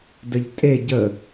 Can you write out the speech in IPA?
d ə ʎ tʼ e ɟ ə

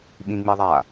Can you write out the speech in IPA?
ɓ ĩ ŋ͡m i ðˤ a

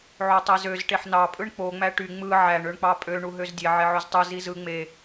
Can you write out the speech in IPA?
ʕ o tˤ e z ø z ʈ e ħ n ɑ pʼ ɯ ɳ k͡p o ŋ͡m æ ʈ y ŋ͡m ɯ ʕ æ ɳ ø ɳ k͡p ɑ pʼ ø ɳ u ɦ ø z dʲ e ʕ e ʕ ø z tˤ ɯ z i z ɯ ŋ͡m e

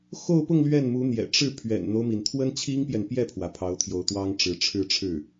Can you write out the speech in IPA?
x o˥˧ ʊ̯ p ʊ˥˧ ŋ l ɥ ɛ˥˩ n m u˧˥ n̪ j ɛ̰˨˩ ʈ͡ʂ ɻ̩˥˩ pʰ ɥ ɛ̰˨˩ n n̪ o˦ ʊ̯ m i˩ n t̪ʰ w ə˥ n t͡ɕʰ i˥ ŋ p j ɛ˨ n p j ɛ˥˩ pʰ w ä˩ pʰ ɑ˧˥ ʊ̯ t̪ʰ j o˧˥ ʊ̯ t̪ w ɑ˥ ŋ ʈ͡ʂ ɻ̩˧˥ ʈ͡ʂʰ ɻ̩˥˧ ʈ͡ʂʰ ɻ̩˥˩

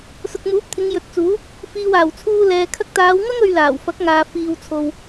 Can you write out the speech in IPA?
s ʊ˨ k̚ m uː˨˥ p̚ t̪ʰ ɪ˨˧ ŋ j ɵ˨ t̚ t͡s uː˨˥ | f iː˨ w aː˨˩ w t͡sʰ uː˧ l ɛː˨ kʰ ɐ˧ k̚ t̪ aː˨˧ w ŋ ɐ˥ ŋ ɵ˧ ɥ l aː˨˩ w f ɐ˨˥ k̚ ŋ aː˨ f iː˧ w t͡sʰ o˧ w

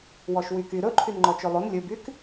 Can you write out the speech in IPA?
w ɔ ʃ w y k y ɾ ɵ ǃʰ y n ŋ͡ǃ ɔ t͡ʃ ø lˠ o n lʲ ɵ b y k

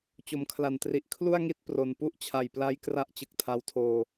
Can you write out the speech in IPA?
t͡ɕ o˨˩ m kʰ l a˨˩ n t r i˨˩ ʔ kʰ l u˥˩ a̯ ŋ i˥˩ t̚ p r o˨˩ n p u˦˥ ʔ t͡ɕʰ a˨˩ j p l a˦˥ j k r a˦˥ ʔ t͡ɕ ɯ˨˩ k̚ tʰ a˦˥ w tʰ oː˧

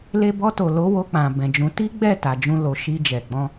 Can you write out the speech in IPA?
l e˧ b ɔ˧ t o˨ l o˨˦ w o˧ k͡p ã˨ b ɛ̃˨ d͡ʒ ũ˨˦ t i˦ ɡ͡b ɛ˦˨ t a˨ d͡ʒ ũ˧ l o˨ ʃ i˧ d͡ʒ ɛ˨ ɡ͡b ɔ̃˧

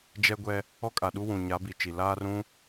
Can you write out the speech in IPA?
d͡ʒ ɛ˦ ɡʷ ɛ˦ | ɔ˦ kʼ a˨ ɗ u˦ w ũ˨ ɲ a˨˦ b i˨ t͡ʃ i˨ l aː˦ r ũ˦

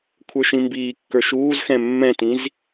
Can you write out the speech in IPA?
kʷʰ ə˞ ʃ ĩ m b iː kː ə˞ ʃ uː z x ɛ̃ mː ɛ̃ t ĩ z

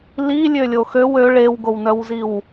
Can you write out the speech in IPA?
l i lʲ ø lʲ o x ø w ø ɭ e w ɡ o w n œ w z i w

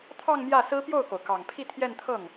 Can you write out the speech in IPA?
t̪ʰ ɑ˥˧ ŋ m j ä˥˩ s ɹ̩˥ p j o˥˩ ʊ̯ k o˩ ʊ̯ k ɑ˨˩ ŋ pʰ i˥˧ t̪ʰ j ɛ˥˧ n t̪ʰ ɤ˥˩ ŋ

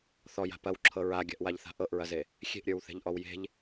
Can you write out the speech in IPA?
θ ɔ j a̤ p ɐ w ǁʰ ɤ ɹ a ɡʲ a̤ ʔ w a ʎ θ a̤ ʔ ɤ ʔ ɹ ɐ z e | xʲ e̤ ʔ ɾʲ ə˞ w θ e̤ ʎ ʔ ɔ w j e̤ ʎ

